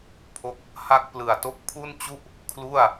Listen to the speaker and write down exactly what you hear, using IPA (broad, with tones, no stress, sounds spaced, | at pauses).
pʰ o˦˥ k̚ | h a˥˩ k̚ p l ɯ˨˩ a̯ t o˦˥ k̚ pʰ u˥˩ n t͡ɕ u˥˩ ʔ | kʰ l u˥˩ a̯